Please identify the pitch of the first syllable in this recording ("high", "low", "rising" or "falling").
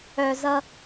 low